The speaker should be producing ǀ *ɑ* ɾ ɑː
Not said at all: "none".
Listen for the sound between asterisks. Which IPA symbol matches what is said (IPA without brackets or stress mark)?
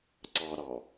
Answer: ɑ